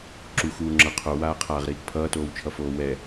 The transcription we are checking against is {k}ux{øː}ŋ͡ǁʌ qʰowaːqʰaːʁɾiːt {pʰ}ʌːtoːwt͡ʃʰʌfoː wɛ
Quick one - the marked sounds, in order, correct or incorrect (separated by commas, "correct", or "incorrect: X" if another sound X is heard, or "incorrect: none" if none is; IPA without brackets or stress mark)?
incorrect: ǁ, incorrect: uː, correct